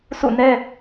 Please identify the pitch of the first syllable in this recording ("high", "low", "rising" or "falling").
falling